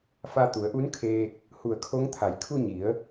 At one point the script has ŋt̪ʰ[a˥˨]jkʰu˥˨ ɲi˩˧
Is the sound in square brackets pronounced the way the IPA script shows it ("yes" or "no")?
no